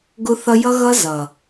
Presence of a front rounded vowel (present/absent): absent